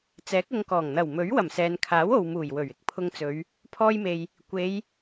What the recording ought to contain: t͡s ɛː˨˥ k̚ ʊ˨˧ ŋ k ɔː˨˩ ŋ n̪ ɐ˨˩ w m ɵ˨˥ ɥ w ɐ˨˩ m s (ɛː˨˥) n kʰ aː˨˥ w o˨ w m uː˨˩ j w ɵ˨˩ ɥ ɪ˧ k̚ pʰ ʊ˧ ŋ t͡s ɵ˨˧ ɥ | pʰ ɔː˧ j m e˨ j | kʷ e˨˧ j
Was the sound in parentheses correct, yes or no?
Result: no